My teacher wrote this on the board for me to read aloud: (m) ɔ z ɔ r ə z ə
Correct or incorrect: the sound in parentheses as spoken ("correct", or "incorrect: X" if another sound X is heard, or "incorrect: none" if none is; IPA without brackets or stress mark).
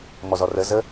correct